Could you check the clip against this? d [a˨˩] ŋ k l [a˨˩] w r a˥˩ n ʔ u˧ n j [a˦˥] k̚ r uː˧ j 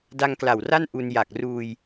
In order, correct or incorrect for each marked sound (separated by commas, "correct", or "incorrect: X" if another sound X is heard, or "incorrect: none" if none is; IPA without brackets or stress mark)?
incorrect: a˧, correct, incorrect: a˨˩